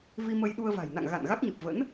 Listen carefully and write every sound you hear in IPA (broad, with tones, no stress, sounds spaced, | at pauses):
v i˧ m ə˧ j ɗ u˧ ə̯ v a̤˨˩ j n a̰˧˨ ŋ ɣ a̰˧˨ n ɣ a˦˥ k̚ ɲ ɨ˨˩ p̚ v ə̰˧˥ n